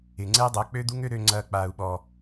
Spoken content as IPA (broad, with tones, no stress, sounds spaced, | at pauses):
ɪ˨ ŋ͡ǀ ɛ˦ dˤ ɐː˨˦ k͡p ø˦ d̪ u˦ ŋ ø˦ ɾ ø˧ ŋ͡ǀ ɐː˧ k͡p aː˨ u̯ ɓ ɔ˨